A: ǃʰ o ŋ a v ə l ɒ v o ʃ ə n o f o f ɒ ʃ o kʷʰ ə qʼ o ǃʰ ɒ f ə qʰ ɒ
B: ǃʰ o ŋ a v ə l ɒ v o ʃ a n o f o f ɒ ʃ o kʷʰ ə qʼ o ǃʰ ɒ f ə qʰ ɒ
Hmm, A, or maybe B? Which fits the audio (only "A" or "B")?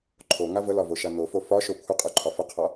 B